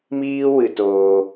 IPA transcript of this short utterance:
miː˦ wɨ˧toː˧

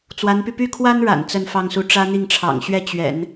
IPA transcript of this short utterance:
t͡swa˧˥npy˧ py˥˩kʰwa˥nɻa̰˨˩n t͡sə˥˧nfɑ˥˧ŋsu˥˩ ʈ͡ʂä˥n̪i˥˩ŋʈ͡ʂʰɑ̰˨˩ŋɕɥɛ˥˩ t͡ɕɥɛ̰˨˩˦n

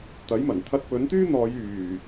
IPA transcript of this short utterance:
t̪ɐ˨˥jmɐ˨˩n t̪ʰɐ˧t̚ pɵ˨˥nt̪yː˥n̪ɔː˨˧j yː˨˩

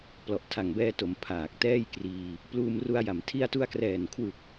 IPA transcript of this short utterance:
plɔ˨˩ʔtʰa˨˩ŋbɛː˧to˩˦m pʰaː˨˩k̚tɛː˥˩jkriː˧ | pluː˧mru˧a̯ja˩˦m tʰi˧a̯tu˧a̯krɛː˨˩nkʰwɯ˨˩k̚

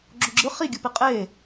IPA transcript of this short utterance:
ɡ͡ǁoɡ͡ǁɯ χiɡʲɯ piqʼeː

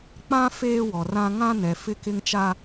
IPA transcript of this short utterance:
k͡pã˦ feː˦wɔ˨rã˦ ŋã˦nɛ˨ fɪ˦kɪ˦ŋt͡ʃa˦

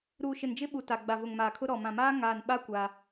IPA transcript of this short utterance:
ɾuː˨ʃɪ˨nd͡ʒɪ˦ɓu˨ ta˨ɡ͡ba˨ vʊ˨ŋmaː˨kʰʊ˦ ɾɔ˨mã˨maː˦ ŋaː˨nɓa˦ kʷa˦

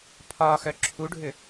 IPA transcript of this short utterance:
pʰɒːxœ ǁʰuɖʱʏ

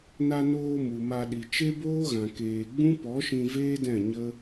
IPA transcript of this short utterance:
na˧noː˧ mu˨ma˧ɗi˨ t͡ʃe˦boː˦ɣã˨ keː˨ɡ͡bũ˦ pɔ˨˦ʃĩ˧veː˦dɛ̃˦˨ ɲə˦

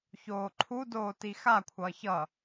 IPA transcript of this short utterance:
çoːǃʰudoː tixakʷʰʌː çʌ

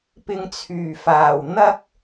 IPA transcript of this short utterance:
pɪ˧ŋt͡sʰyː˨˩ faː˨˩w n̪ɐ˥k̚

